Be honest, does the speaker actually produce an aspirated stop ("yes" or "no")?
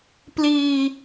no